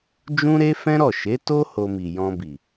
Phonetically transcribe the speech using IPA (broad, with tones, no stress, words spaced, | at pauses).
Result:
d͡ʒũ˧ɾe˧ fɛ̃˦ɾɔ˦˨ ʃe˨˦to˦ ho˧mi˨ jɔ̃˧bi˨